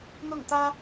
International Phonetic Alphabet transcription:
n̪ ʊ˥˩ ŋ t̪ ä˥

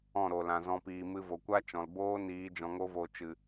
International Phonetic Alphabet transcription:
ɔ̃˦˨ ɾ o˨ l ã˨ z ɔ̃˧ p iː˨ m ɨ˧ v o˨ kʷ a˦ t͡ʃ ɔ̃˨ l b oː˦ n iː˨˦ d͡ʒ ɔ̃˧ ŋ o˦ v o˧ t͡ʃ ɨ˨

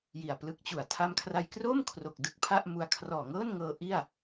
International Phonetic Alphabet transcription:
j i˨˩ a̯ p l ɯ˦˥ k̚ t͡ɕ u˨˩ a̯ tʰ a˧ m kʰ r a˧ j k r oː˥˩ m kʰ r o˨˩ k̚ d ɯ˥˩ k̚ pʰ a˥˩ ʔ m u˧ a̯ kʰ r ɔː˨˩ ŋ ɤː˥˩ n ŋ ɤː˧ ʔ i˥˩ a̯

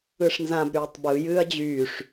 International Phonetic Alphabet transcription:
ɯ ʂ n z ã b ɾ yː tˤ b ɯ j ɨː ɐ̯ d͡ʑ yː ʂ

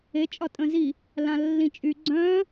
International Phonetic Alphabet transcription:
e t͡ʃʼ ɒ tʼ ə̃ z i | l ã lː ĩ t͡ʃʼ y ɡ͡ǀ œ̃

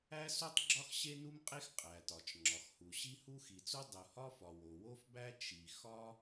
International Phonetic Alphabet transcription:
æ˥ s u˥ tˤ ɡ͡ǁ ɒ˥ x ɕ e˥ n u˥ m qʼ e˥ x qʼ æ˩ t ɒ˩ t͡ʃ ŋ͡ǁ ɒ˩ x h u˩ ɕ i˥ h u˥ x i˩ t͡s u˥ dˤ u˩ h ɒ˥ f ɒ˩ w o˩ w o˥ f b æ˥ t͡ʃ i˩ x ɒ˥

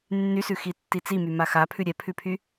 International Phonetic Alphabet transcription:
nː y s ʉ x i tː i t͡s i m y m a x a pʰ ʉ ɾʲ ɛ pʰ ʉ pʰ y

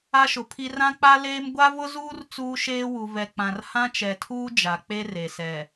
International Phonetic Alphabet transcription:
a˦ ʃ ʊ˨ pʰ i˦ r ã˦ k͡p a˦ l eː˦ m ɡʷ a˦ v ʊ˦ z uː˦ r t͡s uː˦ ʃ eː˦ w u˨ v ɛ˨ k͡p ã˨ r h ã˦ t͡ʃ ɛ˨ tʰ uː˦ d͡ʒ a˨ k͡p e˦ r e˨ s ɛ˨

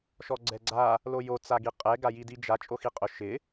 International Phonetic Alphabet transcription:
ʃ ɔ ɡ͡ǀ ɛ ɡ͡ǀ a | l o j o t͡s a ɡ i qʼ ɛ ɡ a j i d i d͡ʒ a t͡ʃʼ o x i qʼ ʊ ʃ ɪ

